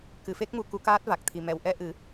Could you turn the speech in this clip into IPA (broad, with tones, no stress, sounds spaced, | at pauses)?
k ɨ˨˩˨ f e˦˥ k̚ m u˨˩ k u˧˥ k aː˦˥ t̚ v a˨˩ k̚ t̪ʰ i˨˩ m ɛ˨˩˨ w ʔ ɛ˧ ʔ ɨ˨˩˦